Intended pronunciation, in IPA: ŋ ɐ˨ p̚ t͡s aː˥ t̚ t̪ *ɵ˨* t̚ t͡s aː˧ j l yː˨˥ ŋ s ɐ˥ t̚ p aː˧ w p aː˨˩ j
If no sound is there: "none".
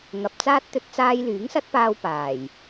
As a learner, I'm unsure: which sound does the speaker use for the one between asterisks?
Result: ɵ˧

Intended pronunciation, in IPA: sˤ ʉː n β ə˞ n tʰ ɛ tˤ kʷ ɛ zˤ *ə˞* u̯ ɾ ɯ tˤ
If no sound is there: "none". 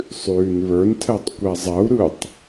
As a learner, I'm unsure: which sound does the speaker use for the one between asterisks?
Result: ɐ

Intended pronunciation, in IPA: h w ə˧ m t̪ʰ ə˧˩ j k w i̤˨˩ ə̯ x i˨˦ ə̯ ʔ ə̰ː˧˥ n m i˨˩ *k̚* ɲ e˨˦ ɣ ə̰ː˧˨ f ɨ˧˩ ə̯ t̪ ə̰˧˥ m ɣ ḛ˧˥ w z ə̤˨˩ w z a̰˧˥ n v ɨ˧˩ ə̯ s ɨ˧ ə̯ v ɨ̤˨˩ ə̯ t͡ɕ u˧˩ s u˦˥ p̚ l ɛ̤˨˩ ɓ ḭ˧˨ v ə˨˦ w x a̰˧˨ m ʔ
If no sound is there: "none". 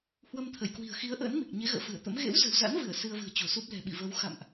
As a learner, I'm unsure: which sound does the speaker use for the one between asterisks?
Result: k̚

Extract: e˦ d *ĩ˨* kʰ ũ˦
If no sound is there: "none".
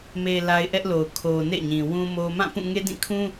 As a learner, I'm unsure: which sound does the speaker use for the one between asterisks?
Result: ĩ˦˨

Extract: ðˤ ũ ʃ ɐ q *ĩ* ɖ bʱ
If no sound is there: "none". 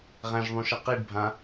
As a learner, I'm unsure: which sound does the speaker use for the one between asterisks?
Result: i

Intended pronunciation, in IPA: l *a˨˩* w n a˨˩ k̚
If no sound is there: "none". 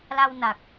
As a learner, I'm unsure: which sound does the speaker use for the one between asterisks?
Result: a˧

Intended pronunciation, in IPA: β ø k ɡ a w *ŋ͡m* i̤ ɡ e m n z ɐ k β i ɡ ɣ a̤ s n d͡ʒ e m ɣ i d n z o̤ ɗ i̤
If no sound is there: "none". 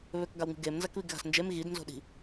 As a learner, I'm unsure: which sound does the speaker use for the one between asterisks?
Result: ŋ͡m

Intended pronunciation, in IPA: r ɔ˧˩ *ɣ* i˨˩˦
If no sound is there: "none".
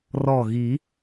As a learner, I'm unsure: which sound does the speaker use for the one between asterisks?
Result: ɣ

